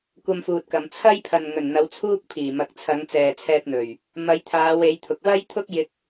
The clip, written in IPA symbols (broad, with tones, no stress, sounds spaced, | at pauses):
kʷ ɐ˧ m f uː˨ t̚ k ɐ˨ m t͡sʰ ɐ˥ j pʰ ɐ˨ n ŋ ɵ˨˩ n n̪ ɐ˨˧ w t͡sʰ uː˥ k̚ pʰ iː˨˩ m ɐ˨ k̚ t͡sʰ ɐ˨˧ ŋ t͡s ɛː˨ t͡sʰ ɛː˧ t̚ n̪ ɵ˨˩ ɥ | m ɐ˨˧ j t̪ʰ aː˨˧ w e˨˧ j t̪ʰ ʊ˨ k̚ w ɐ˥ j t̪ʰ ʊ˥ k̚ j ɪ˧ k̚